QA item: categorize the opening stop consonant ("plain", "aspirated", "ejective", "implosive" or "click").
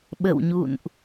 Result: implosive